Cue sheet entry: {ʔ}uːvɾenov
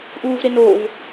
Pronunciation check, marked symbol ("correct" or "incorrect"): correct